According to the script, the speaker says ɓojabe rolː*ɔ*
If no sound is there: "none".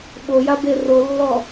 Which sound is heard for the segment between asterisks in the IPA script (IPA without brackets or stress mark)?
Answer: ɔ